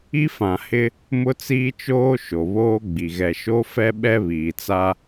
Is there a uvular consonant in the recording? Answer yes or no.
no